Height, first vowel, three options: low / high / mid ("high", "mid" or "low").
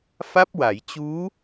low